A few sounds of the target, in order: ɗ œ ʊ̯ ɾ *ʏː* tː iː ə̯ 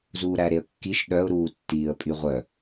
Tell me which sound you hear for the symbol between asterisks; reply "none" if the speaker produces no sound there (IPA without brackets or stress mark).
uː